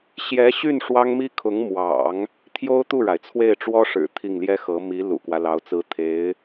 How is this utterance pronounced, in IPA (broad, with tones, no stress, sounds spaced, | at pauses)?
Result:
ɕ j ɛ˧˥ ɕ y˥˩ n ʂ w ɑ˥ ŋ m i˥ kʰ ʊ˧˥ ŋ m w ɑ̰˨˩˦ ŋ | t̪ʰ j o˥ ʊ̯ t̪ u˥˩ ɻ a˩ ɪ̯ t͡sʰ w e˥˩ ɪ̯ ʈ͡ʂ w ɔ˥ ʂ ɻ̩˨˩ t̪ʰ i˥˩ ŋ l j ɛ˥ x ɤ˧˥ m i˧˥ l ṵ˨˩ k w ä˦ l ɑ˧˥ ʊ̯ t͡s ɹ̩˧˥ t̪ʰ e˧˥ ɪ̯